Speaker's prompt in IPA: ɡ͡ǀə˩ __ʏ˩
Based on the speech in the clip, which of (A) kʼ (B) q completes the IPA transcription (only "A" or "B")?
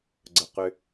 B